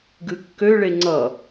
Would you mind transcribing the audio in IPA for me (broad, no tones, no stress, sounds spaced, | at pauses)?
ɡ ɨ kː ø ɭ e ŋ͡ǀ ʌ